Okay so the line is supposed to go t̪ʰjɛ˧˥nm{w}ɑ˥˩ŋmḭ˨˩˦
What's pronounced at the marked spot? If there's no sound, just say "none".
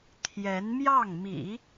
j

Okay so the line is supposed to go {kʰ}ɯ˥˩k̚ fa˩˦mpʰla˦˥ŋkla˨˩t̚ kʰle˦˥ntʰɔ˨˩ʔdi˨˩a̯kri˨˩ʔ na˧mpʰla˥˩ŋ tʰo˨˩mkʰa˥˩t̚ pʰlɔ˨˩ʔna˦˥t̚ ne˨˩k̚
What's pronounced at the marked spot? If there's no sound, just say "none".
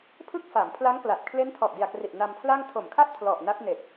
pʰ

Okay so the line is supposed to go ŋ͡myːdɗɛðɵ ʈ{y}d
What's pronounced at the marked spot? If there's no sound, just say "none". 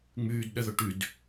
y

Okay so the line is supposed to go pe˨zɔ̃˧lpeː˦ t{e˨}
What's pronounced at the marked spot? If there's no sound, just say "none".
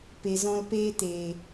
eː˨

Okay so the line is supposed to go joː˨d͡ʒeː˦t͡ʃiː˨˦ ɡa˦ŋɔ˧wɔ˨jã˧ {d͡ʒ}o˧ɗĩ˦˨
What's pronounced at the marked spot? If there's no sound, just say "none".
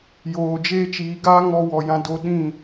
d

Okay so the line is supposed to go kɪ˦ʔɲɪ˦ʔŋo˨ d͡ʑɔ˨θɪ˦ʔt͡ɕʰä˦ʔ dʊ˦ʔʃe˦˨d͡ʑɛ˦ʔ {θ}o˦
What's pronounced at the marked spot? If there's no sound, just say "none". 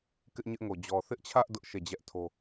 tʰ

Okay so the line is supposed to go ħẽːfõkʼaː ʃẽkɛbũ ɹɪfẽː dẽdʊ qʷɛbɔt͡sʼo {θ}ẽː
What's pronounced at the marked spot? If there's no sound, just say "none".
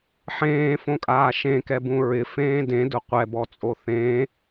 θ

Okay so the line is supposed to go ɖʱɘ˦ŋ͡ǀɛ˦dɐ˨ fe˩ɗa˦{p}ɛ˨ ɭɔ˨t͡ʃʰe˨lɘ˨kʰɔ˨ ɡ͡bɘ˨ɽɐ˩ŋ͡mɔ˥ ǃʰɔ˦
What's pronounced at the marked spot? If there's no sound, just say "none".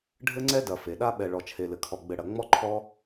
ɓ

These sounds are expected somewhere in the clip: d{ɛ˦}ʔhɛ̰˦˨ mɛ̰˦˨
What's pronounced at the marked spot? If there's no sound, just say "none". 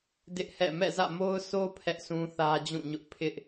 ɪ˦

